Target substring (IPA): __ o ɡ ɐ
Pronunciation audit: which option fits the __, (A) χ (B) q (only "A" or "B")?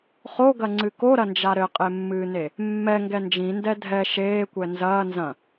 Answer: A